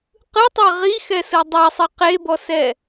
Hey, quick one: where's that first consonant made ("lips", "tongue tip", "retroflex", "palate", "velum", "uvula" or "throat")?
uvula